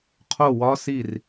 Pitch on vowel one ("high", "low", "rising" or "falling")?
falling